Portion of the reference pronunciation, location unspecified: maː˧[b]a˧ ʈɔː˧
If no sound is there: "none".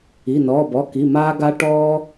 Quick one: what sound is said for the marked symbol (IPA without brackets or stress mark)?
ɡ